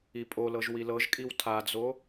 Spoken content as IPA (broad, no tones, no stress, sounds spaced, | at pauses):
i pʼ o l ɤ ʒ w i l ɤ ʒ kʼ i w tʰ a d͡z o